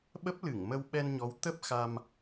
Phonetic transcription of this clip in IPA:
ɓə˦˥p̚lɨ˧˩ŋmə˧w ɓɛ˧nɲɔ˨˦w t̪ə˦˥p̚xa˧m

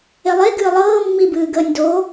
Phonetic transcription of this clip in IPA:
elˠe ɡɨːlˠɤː mːibɨːɡəːnʲdo

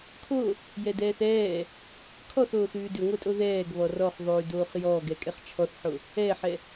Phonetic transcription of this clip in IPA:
kʰo | jɛdɛːθɛː | kʰɔθoːθ ʉːdʉŋʷɛtʼo ðɛːɡ βɔrɔχ ðˤʉːdoːχjɔːɡɛ kʼɛχt͡ʃʰɔθħo | ɛħɛ

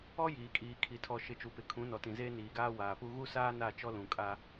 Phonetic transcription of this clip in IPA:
ɔ˦jiː˨kʼiː˨kʰi˨ tʰɔ˨ʃɪ˨ t͡ʃu˨pɪ˨kʰũ˨˦ nɔ˨tĩ˨zeː˦ niː˨ɡaː˦waː˨pu˦ ɣu˦saː˦na˦˨ t͡ʃɔ˦lũ˨ kʼa˦

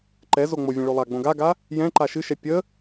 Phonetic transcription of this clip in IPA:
ǃɛ zoŋ͡movʲɛ̃ ɭolˠaɡ͡bõ ɡaɡa | jɛ̃ ǃaʃɨʃɛ pʲə

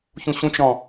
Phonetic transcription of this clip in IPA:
çũɕũt͡ʃɾɔ̃

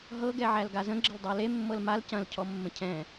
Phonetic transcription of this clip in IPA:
ɦɤ ɡɛʕælɡazə̃ ɡ͡ǁəldˤæle mːɤlmal cɐ̃l cʰɔmːə̃cʰɛ̃

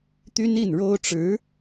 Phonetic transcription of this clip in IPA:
t̪y˥n i˥˩nɻo˥ʊ̯ʈ͡ʂɻ̩˧˥

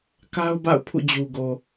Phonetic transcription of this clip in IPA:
ka˦ʊ̯ba̰˦˨ʊ̯ pʰṵ˦˨d͡ʑu˨ɡo˨

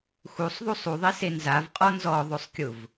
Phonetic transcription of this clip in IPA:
xusˤðˤusˤ uðˤise nzavqʼɔ nzɔðˤosˤkʲʊv

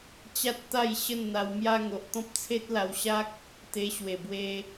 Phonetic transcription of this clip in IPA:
t͡ɕa˦t̚t̪a˥˧jɕə˥˧n n̪a˧wmja˦ŋo˨ʔ t̪ɔ̃˦p̚t͡sʰe˦t̚la˧wɕa˦k̚ | t̪e˧ɕwe˨˩bwe˧

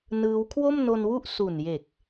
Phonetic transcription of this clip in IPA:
nɯː˦˥w kʰwo˥˩mno˧nwu˥˩ʔ su˨˩nje˨˩k̚

